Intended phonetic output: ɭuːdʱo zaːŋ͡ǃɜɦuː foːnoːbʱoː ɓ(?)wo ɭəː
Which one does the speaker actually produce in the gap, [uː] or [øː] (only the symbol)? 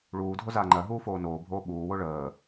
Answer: uː